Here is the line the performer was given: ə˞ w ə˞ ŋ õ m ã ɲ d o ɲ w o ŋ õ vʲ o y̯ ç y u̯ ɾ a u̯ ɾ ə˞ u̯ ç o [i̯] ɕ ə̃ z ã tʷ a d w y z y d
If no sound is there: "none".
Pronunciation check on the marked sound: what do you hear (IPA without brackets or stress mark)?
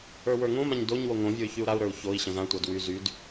i̯